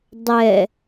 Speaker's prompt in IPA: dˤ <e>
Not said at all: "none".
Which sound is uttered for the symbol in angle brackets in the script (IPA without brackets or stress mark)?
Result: ɛ